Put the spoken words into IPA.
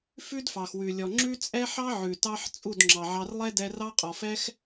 f ʉ˦ d f ɑ˨ x w ʉ˨ lʲ ɔ˨ ŋ͡ǁ ʉ˦ t͡sʼ ɛ˦ ħ ɑ˦ ʕ ʉ˨ t ɑ˦ ħ t͡sʼ u˦˨ d ŋ͡ǁ ɑ˨ ʕ ɑ˧ r lˠ ɛ˦ d ɛ˧ r ɑ˦ qʼ ɔ˨ f ɛ˦ x

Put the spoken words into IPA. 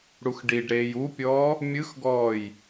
ɽ u x ɖ i ɖ ɾ eː j u pʲ ɔː | mʲ ɯ x ɡ ɔː j

